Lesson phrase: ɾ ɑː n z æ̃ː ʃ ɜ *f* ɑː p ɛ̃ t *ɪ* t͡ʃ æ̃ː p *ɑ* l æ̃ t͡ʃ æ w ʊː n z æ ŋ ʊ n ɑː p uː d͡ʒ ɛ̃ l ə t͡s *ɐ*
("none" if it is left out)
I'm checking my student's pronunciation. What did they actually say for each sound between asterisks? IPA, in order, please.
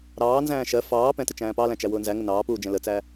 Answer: f, ɪ, ɑ, æ

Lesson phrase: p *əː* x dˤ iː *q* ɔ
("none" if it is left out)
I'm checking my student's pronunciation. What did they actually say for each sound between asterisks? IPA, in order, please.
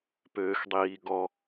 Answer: øː, ɡ

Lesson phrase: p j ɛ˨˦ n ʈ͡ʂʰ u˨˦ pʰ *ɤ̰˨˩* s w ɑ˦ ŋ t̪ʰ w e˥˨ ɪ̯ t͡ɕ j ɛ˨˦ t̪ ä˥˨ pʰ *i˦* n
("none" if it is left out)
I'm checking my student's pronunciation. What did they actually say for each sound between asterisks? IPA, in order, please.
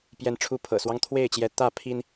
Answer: ɤ̰˨˩, i˦

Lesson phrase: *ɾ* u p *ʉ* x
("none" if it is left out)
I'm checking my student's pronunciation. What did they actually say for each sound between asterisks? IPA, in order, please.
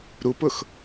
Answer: ɾ, ʊ

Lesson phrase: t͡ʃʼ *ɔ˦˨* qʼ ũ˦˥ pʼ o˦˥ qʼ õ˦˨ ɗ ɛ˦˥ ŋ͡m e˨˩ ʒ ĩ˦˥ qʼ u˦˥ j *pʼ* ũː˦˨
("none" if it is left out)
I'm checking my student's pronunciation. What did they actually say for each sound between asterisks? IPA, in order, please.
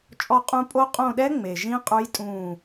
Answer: ɔ˦˨, tʼ

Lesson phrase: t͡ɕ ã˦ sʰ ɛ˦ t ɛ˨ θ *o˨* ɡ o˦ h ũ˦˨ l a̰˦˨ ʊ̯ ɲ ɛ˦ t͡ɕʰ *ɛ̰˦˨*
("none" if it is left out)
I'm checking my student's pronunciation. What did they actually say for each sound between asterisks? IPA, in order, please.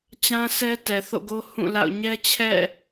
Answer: o̰˦˨, ɛ̰˦˨

